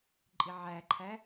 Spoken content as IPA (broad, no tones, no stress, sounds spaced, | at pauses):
ǃʼ i ʕ æ ǃʰ æ